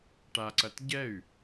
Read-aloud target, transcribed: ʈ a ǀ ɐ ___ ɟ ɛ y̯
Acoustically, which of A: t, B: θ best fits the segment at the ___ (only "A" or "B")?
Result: A